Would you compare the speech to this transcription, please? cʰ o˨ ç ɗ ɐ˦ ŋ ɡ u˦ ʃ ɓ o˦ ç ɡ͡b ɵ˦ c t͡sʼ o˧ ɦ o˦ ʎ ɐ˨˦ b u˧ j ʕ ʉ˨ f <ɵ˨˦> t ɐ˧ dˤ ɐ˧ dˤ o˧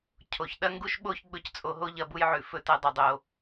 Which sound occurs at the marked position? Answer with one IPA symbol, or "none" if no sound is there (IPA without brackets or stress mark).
ɵ˧